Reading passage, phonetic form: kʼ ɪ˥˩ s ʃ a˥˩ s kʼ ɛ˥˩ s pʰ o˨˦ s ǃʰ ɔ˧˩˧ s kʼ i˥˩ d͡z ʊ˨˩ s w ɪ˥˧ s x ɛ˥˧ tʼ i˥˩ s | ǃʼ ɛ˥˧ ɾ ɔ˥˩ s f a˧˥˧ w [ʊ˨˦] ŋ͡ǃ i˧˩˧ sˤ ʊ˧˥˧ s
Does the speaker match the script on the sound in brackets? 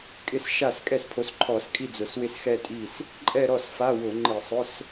no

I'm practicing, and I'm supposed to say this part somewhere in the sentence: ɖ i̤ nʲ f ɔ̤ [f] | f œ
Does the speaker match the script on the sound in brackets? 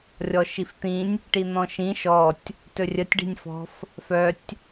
yes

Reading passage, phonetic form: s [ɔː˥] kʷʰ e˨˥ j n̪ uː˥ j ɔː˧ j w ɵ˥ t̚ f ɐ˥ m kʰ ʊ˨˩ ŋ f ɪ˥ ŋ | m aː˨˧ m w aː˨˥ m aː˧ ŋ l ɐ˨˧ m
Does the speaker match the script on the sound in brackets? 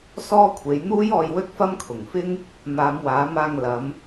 yes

